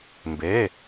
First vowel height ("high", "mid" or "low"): mid